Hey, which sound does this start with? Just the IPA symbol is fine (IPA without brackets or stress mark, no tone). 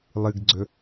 lˠ